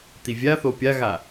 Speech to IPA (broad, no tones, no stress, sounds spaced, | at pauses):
t̪ i vʲ a θ o pʲ a ɣ a